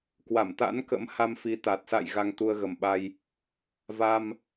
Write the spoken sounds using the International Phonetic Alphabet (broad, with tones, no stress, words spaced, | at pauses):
kwa˧˩mt̪a̰˧˥nkə̰˧˥mha˧m fi˨˦t̪a˨˩t̚ sa̰˧˨j ɣa˧ŋt̪u˧ə̯ɣə˨˩mɓa˧j | va˧m